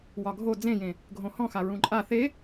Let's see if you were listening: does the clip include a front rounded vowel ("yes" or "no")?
no